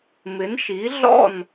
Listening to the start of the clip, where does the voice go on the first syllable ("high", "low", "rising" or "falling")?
rising